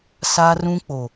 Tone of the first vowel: high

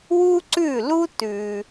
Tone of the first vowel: high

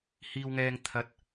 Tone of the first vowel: high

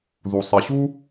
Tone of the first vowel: low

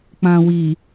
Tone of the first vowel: low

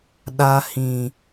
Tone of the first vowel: high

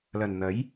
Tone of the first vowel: low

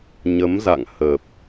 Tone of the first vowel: rising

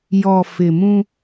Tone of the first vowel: low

